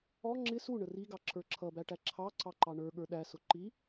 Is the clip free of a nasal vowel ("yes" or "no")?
yes